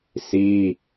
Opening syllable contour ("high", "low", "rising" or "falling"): high